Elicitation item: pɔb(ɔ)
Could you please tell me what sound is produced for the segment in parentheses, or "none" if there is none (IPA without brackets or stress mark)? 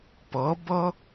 ɔ